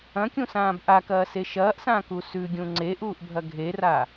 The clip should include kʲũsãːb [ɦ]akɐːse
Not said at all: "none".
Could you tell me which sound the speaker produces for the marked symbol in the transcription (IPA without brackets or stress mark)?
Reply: ʔ